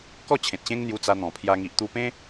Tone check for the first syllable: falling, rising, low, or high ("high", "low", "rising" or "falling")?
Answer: falling